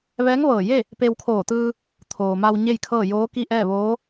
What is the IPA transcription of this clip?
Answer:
ʋɛː˧˥ŋʋɤː˧˩je˥˨ | pe˧wkʰoː˧˩t̪ɯː˧ | t̪ʰoː˩ma˧w ɲe˥˨jkʰɤː˥˨joː˧˥ki˥˨ ʔɛː˥˨ʋoː˧˥

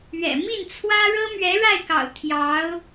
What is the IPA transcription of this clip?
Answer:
ɥɛ̰˨˩ mi˥˩nt͡sʰwä˥ ɻɤ˥mɥɛ˧˥ɻa˥˩ɪ̯kɑ̰˨˩ʊ̯ t̪ʰjɑ˧˥ʊ̯

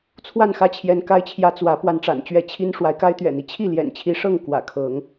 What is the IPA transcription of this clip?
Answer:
t͡sʰwa˥˨nxä˦t͡ɕʰjɛ˨˦n ka˦ɪ̯t͡ɕʰjä˦ t͡swä˨˦ pwa˦nʈ͡ʂa̰˨˩nt͡ɕɥɛ˥˨ t͡ɕʰi˦n ʂwa˨˦ɪ̯ka˦ɪ̯t̪ɥɛ̰˨˩n̪i˦ t͡ɕʰi˥˨ljɛ̰˨˩nt͡ɕʰi˨˦ʂɤ˥˨ŋ kwä̰˨˩kʰɤ˨˦ŋ

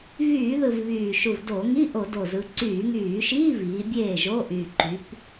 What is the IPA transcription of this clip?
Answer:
vyː˧˩˧ðɯ˨˩v βyː˨˩ʃu˨˩vdo˧˩˧ ŋi˧˥˧ʔo˧˩˧do˨˩zɯ˩˧ ǀyː˧˩˧ŋyː˧˩˧ʃiː˧˥˧viː˩˧ bʲeː˥˩ʒo˧˥˧ ʔy˨˩ǃy˩˧p

